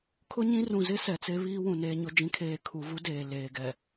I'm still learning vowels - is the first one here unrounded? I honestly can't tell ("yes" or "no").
no